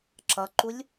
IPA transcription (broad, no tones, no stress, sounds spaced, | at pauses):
ǁ ʌ ǃ u lʲ